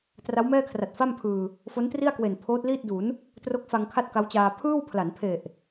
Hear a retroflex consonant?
no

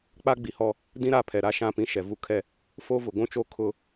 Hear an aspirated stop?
yes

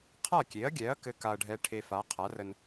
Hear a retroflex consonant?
yes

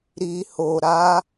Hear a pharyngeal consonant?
no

